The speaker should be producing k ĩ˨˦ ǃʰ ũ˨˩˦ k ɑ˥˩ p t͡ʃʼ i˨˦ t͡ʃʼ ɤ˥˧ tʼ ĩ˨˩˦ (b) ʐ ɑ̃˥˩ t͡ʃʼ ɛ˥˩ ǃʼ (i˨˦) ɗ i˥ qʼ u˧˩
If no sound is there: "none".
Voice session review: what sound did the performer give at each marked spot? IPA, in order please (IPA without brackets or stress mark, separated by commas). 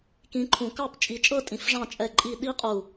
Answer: f, i˥˧